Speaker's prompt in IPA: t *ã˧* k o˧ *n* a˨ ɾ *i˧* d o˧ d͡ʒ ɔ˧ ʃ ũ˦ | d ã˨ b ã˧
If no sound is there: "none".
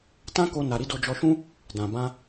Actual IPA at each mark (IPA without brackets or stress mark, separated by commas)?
ã˦, n, i˨˦